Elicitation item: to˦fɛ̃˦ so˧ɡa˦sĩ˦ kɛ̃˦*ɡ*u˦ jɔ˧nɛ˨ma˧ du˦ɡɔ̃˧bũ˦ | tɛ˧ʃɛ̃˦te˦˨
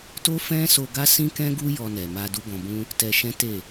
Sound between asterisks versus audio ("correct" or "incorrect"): correct